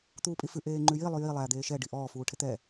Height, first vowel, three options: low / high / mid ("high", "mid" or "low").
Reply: high